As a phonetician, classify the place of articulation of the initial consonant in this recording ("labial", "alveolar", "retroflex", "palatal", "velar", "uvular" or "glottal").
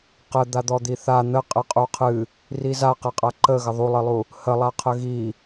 uvular